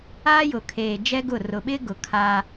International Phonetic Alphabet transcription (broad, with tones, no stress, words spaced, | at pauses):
aː˦jʊ˨kʰeː˨ d͡ʒɛ˦ɡʊ˦˨ rʊ˨ɓɪ˦ɡʊ˨ kʰa˦